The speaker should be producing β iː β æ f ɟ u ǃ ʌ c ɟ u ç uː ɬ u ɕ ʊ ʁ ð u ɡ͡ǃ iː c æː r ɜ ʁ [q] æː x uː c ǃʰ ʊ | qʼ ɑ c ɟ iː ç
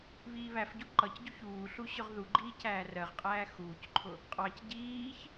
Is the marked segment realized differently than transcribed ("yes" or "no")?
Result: yes